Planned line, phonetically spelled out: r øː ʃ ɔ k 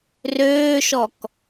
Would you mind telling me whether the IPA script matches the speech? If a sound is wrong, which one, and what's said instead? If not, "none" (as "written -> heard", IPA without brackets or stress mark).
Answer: none